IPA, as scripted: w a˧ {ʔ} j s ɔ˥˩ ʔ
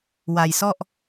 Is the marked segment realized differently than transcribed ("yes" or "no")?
yes